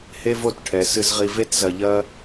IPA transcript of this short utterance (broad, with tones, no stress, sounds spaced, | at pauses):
h e˥ v o˥˩ t ʈʰ ɛ˩ s ɨ˧ z ʁ i˧ v e˥ t z ɐ˧ ʎ ɐ˥